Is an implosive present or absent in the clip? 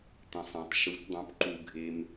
absent